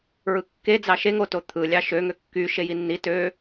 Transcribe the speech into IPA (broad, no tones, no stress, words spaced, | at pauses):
ɹɯkːed͡zɑ ʃeŋoto t̪ʰɯlʲɑ ʃø ŋøkːy ʃejinːi tø